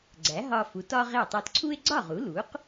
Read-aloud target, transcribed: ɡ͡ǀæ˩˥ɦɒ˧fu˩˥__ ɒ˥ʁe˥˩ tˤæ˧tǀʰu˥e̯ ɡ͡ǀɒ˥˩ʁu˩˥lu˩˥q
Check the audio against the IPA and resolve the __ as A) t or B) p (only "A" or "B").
A